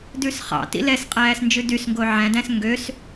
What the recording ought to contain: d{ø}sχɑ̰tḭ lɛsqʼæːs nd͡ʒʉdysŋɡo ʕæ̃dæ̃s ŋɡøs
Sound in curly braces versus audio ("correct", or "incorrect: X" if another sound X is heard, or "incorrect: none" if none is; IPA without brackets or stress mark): incorrect: ʉ